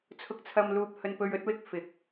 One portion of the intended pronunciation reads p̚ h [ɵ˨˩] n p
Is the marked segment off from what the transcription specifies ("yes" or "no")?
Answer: yes